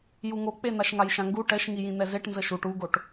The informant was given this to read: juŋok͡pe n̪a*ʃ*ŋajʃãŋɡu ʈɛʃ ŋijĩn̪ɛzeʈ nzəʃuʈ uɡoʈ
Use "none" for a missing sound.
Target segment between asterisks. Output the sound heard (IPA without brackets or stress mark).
ʃ